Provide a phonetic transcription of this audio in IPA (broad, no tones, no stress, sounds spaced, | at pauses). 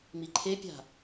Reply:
m i ǃʰ e pʲ a̤